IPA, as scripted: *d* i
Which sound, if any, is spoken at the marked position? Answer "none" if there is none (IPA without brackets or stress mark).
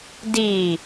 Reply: d